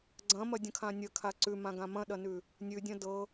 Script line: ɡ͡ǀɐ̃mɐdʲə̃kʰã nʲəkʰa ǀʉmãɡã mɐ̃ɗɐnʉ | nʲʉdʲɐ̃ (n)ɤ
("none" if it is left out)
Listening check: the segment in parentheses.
d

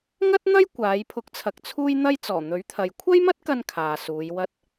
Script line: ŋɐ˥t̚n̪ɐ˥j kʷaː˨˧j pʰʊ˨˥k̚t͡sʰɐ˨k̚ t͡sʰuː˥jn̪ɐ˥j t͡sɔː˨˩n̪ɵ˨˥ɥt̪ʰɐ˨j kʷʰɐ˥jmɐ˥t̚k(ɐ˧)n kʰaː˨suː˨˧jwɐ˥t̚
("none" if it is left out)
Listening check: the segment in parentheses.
ɐ˧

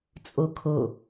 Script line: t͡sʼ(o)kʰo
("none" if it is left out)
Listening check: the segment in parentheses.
o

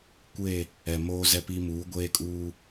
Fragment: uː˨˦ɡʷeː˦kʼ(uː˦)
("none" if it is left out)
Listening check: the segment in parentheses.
uː˦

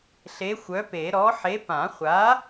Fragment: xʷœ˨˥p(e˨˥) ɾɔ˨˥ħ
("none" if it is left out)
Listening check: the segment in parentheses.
e˨˩˦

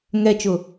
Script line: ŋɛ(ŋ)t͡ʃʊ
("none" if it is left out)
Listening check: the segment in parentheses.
none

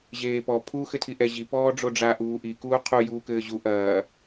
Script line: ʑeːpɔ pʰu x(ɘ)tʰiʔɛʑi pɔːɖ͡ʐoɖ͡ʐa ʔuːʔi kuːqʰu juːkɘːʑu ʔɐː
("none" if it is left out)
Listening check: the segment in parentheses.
ɘ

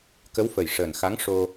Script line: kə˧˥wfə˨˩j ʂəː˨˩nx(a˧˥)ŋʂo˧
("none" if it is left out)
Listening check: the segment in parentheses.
a˧˥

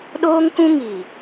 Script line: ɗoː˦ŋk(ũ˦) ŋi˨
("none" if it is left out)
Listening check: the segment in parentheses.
ũ˦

